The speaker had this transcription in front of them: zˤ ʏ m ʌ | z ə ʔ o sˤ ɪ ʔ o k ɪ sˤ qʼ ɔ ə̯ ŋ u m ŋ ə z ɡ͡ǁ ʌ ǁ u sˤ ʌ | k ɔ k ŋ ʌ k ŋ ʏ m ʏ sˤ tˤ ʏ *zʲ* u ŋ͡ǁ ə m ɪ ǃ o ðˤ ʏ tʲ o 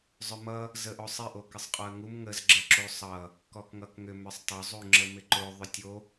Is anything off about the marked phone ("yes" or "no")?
yes